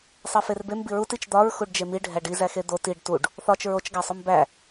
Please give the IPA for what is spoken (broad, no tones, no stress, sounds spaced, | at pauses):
sˤ e f e r b e m b i ɹ u t i t͡ʃ d̪ ɒ ɹ x u ɖ d͡ʒ e m i ɖʱ æ ɖ i z æ x e d̪ o t i ɖ t u ɖ | θ ɒ t͡ʃ ɹ o t͡ʃ ɡ æ sˤ o m b æ